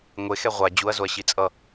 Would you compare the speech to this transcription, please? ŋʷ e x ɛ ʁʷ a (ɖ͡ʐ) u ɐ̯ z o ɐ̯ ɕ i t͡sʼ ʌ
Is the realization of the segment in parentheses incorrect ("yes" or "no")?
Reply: yes